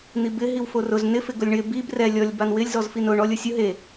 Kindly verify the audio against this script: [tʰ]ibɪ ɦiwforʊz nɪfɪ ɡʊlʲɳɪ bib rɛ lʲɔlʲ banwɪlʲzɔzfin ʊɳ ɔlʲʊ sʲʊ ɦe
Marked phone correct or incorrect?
incorrect